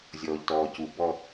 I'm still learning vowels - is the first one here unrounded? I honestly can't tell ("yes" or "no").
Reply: no